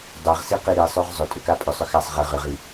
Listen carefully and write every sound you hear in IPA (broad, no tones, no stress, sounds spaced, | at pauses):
dˤ ɛ ʁ s i q i ɾ i sˤ ø ʁ zˤ ʏ tʼ ʏ k a pʼ ʏ sˤ ʏ x a sˤ ʁ ɨ ʁ ʏ ʁ i